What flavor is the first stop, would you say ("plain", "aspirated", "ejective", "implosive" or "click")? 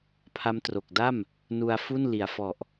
aspirated